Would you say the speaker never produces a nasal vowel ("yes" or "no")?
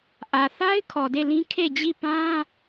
no